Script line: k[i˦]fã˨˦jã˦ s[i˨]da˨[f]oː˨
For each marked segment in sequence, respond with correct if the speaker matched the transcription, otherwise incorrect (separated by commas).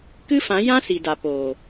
incorrect, correct, incorrect